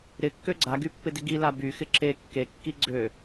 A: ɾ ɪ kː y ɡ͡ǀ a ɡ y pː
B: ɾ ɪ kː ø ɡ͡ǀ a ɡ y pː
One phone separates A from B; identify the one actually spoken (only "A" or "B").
B